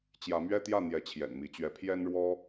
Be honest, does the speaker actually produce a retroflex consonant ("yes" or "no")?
yes